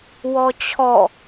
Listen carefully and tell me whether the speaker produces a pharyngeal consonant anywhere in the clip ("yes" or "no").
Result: no